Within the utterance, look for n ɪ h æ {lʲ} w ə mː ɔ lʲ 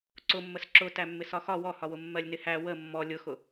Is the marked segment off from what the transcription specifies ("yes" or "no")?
yes